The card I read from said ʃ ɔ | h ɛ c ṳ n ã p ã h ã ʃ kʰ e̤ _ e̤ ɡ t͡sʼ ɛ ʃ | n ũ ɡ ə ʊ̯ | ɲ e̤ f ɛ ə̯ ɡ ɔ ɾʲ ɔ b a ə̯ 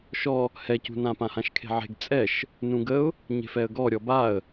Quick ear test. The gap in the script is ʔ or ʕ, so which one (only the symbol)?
ʕ